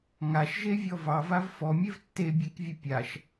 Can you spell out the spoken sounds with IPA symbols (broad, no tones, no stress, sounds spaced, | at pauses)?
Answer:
ŋ a ʃ ʒ e vʲ ɔ v ɑ v a v f ɔ mʲ e v tː e bʲ e k vʲ ə pʲ a ʃ